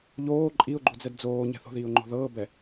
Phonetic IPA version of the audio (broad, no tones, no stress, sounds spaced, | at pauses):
ʎ oː ǃʼ i ʊ̯ ɡ͡ǃ u d͡z ɛ d d͡z oː ɲ ɛ̤ θ o̤ ð iː ʊ̯ ŋ͡ǃ o̤ ð ɤː b ɛ